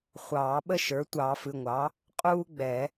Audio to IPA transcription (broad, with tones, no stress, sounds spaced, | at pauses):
χʷ ɑː˨˩˦ ɓ ə˥˩ ʃ ə˞˩˥ tʷ ɑ˨˩˦ f ɨ˩˧˩ ŋʷ ɑ˩˥ | qʼ uː˥ ɡ͡b ɛ˨˩˦